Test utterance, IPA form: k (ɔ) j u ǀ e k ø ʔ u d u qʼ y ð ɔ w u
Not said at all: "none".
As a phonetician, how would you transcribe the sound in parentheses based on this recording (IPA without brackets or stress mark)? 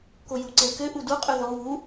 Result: o